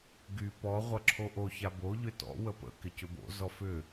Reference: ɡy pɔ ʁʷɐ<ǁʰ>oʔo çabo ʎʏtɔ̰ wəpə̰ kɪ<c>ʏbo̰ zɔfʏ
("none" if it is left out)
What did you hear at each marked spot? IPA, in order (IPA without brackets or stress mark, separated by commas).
ǁʰ, c